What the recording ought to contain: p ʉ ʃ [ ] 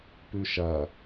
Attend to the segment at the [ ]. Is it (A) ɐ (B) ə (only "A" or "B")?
A